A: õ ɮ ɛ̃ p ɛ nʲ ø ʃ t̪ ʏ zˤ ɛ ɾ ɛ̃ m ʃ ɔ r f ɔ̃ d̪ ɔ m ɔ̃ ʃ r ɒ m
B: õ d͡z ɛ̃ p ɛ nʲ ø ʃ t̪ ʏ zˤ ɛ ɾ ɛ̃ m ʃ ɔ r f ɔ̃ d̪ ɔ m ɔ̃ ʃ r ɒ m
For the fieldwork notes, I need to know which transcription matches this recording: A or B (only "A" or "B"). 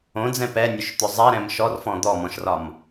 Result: B